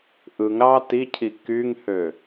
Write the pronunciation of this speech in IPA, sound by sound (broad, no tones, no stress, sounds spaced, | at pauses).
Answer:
ʔ ɯ ŋ ɾ ɑ t i cʰ i k y ŋ h ø